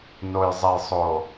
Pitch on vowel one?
low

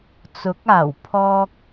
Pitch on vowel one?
rising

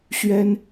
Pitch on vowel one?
high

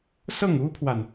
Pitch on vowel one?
falling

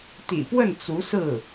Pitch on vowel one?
low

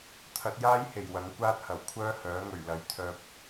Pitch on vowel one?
rising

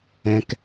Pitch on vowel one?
low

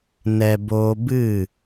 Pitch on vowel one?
low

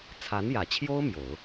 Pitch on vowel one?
rising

